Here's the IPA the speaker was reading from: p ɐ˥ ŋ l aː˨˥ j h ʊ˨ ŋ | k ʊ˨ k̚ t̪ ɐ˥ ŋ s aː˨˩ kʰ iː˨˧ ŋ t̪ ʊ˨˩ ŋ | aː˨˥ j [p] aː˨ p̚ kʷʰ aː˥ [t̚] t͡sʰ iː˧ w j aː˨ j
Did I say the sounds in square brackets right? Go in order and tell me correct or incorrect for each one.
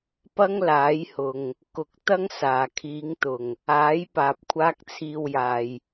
correct, incorrect: k̚

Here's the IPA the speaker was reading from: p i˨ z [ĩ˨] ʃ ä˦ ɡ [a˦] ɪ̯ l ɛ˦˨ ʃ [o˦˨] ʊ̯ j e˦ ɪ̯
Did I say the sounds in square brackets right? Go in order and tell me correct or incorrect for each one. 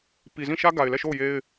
incorrect: ĩ˦˨, incorrect: a˨, correct

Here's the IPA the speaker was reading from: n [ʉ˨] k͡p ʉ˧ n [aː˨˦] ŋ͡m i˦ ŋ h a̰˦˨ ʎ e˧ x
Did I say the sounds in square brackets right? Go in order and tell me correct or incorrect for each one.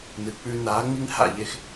incorrect: ɨ˨, correct

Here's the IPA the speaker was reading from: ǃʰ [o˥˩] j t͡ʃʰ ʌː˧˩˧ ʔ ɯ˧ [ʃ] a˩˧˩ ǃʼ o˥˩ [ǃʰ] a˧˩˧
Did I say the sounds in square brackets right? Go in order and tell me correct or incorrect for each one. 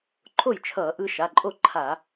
correct, correct, correct

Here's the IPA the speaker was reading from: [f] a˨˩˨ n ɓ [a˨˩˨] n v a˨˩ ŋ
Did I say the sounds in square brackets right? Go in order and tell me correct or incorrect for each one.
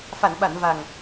correct, correct

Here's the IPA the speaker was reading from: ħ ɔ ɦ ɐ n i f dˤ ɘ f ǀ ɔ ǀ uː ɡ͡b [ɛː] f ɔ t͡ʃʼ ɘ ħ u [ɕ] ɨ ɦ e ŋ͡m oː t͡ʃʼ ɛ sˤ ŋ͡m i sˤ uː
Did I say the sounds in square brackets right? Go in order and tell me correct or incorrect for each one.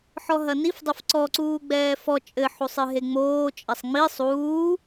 correct, incorrect: sˤ

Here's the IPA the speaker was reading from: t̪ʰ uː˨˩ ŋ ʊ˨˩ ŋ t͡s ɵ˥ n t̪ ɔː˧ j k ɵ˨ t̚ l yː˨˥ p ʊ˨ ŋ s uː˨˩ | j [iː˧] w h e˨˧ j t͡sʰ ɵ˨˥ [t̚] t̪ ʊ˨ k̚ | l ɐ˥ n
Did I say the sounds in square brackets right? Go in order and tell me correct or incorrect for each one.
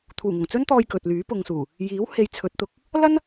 incorrect: iː˨˥, correct

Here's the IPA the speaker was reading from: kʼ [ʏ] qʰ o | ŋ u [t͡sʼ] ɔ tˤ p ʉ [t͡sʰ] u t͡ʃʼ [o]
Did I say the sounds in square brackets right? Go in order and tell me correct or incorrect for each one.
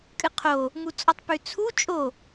incorrect: ɨ, correct, correct, correct

